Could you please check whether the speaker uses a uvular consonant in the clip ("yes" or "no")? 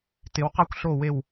yes